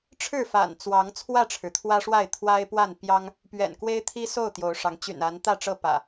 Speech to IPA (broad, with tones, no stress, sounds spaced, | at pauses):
ʈ͡ʂʰ ɻ̩˥˨ f a̰˨˩ n t͡s w ɑ˨˦ ŋ t͡sʰ w ä˥˨ ʈ͡ʂʰ ɻ̩˩ t̪ʰ w ä˦ ʂ w a˥˨ ɪ̯ t̪ʰ w a˦ ɪ̯ p w a˥˨ n p j ɑ˦ ŋ | p ɥ ɛ̰˨˩ n k w e˦ ɪ̯ t̪ʰ i˦ s o˥˨ ʊ̯ t̪ j o˨˦ ʊ̯ ʂ ɑ˨˦ ŋ t͡ɕ y̰˨˩ n a˨˦ n t̪ ä˥˨ ʈ͡ʂ ɤ˥˨ p ä̰˨˩